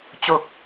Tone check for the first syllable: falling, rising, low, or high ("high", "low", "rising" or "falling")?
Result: low